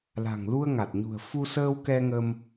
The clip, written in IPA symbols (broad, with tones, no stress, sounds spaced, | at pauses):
l a̤˨˩ ŋ l u˧ ə̯ ŋ a˨˩ t̚ ɲ ṳ˨˩ ə̯ f u˧ s əː˧ w k ɛ˧ ŋ ə˧ m